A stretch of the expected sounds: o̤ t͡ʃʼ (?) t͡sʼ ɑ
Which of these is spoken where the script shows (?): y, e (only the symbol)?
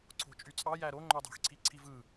y